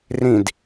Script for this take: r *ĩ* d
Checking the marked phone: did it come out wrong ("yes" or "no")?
no